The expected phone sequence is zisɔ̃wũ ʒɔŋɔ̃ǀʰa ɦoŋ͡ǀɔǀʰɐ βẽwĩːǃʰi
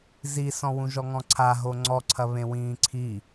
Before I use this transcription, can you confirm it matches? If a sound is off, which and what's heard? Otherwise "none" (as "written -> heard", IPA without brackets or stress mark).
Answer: ǃʰ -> ǀʰ